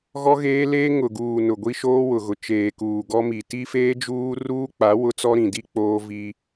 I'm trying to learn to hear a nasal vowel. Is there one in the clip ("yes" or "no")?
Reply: yes